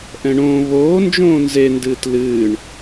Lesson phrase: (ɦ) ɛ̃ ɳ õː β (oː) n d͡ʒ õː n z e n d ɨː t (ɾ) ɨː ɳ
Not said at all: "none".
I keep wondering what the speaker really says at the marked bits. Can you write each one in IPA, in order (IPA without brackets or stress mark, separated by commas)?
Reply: ʔ, oː, l